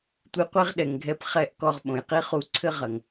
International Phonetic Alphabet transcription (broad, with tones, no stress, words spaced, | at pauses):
tʷɨ˧qʷe˦ʁɗɛ˨ŋɡʱɛ˧p χɛ˦ʔkɔ˧ʁɓõ˨jqi˦ χu˧ǀʰɘ˦ʁɐ˨ŋ